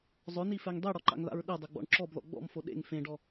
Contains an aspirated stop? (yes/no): no